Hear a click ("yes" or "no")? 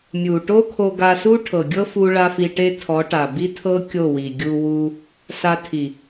no